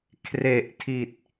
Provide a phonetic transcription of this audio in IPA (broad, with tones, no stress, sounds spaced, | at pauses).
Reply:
kʰ r e˨˩ ʔ tʰ i˨˩ t̚